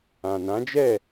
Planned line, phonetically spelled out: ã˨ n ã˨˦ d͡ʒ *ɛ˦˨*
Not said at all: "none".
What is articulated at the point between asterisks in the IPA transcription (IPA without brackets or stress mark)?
ɛ˦˨